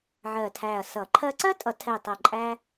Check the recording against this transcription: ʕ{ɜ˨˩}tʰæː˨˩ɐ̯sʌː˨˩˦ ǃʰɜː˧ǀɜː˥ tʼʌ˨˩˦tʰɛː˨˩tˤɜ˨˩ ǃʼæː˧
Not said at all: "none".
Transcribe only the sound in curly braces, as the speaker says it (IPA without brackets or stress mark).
ɜː˨˩